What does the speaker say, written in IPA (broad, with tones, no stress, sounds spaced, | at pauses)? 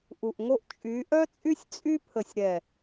ʔ u˨ ʔ ŋ o˦ ʔ t͡ʃʼ y˨˦ ʔ œ˦ t͡sʼ y˦ sʲ t͡sʼ y˦ pʰ ə˨ sʲ ɾ ɛ˨